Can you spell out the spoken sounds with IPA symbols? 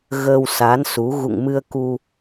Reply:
ɣ ə˧ w s a˨˦ n s u˨˦ ɣ ṵ˧˨ ŋ m ɨ˧ ə̯ k u˧

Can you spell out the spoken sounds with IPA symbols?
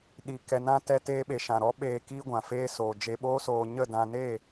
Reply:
ɗ i˨ k ɛ˨ n ã˧ t ɛ˧ t eː˧ ɓ e˨ ʃ ã˨ ɾ ɔ˦ ɓ eː˧ k i˧ ɡʷ ã˨ f eː˧ s oː˨ d͡ʒ e˧ ɓ oː˦ s oː˧ ɲ ə˦˨ d ã˧ n e˦˨

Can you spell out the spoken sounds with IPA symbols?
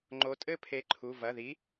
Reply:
ŋ͡ǃ o˨˥ tʼ ɘ˥˧ pʰ e˨˥ ǃʰ u˩˧˩ v ɐ˩˧˩ ð i˨˥

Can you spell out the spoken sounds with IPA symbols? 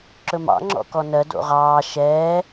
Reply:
ǁ ɵ m ɑ̰ ŋ͡ǁ ɔ̰ k ɔ n ɜ d o̰ ʁ ɑː ʃ ɛː

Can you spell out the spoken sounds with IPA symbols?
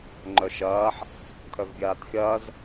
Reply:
ŋ͡ǃ œ ʃ ɐː ħ | kʰ œ v ɡʲ aː t xʲ ɐː z

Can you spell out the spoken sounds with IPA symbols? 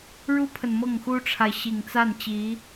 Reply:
ɻ u˥ pʰ ə˨ n m ɤ˥˩ ŋ x u˥ ʈ͡ʂʰ a˨ ɪ̯ ɕ i˨˩ ŋ t͡s a˥˩ n t͡ɕ i˧˥

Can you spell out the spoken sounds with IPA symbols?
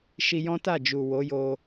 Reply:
ʃ i˧ j ɔ̃˦ t a˦˨ d͡ʒ u˨ w o˨˦ j o˧

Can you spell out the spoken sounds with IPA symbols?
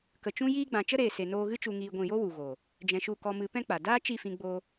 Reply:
k ə˨ t͡ʃ ũ˧ j iː˧ ɡ͡b ã˨ t͡ʃ ə˦ ɾ eː˨ s e˨ n oː˧ ɣ ɨ˦ t͡ʃ u˧ ŋ iː˧ ɡʷ ĩ˦˨ j o˦ w u˨ ɣ oː˨ | d͡ʒ ɛ̃˧ ʃ u˦˨ k ɔ˧ m ɨ˨˦ p ɛ̃˦ k͡p a˨ d aː˦ t͡ʃ i˦˨ f ĩ˧ ɡ͡b oː˧

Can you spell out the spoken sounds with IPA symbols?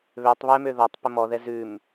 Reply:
β ø tˤ β ɛ m ø ð ɔ tˤ p ə m ɔ ð ɛ z ʉ m

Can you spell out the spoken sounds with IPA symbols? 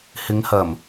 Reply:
h ɪ˨˧ ŋ h ɐ˨˩ m

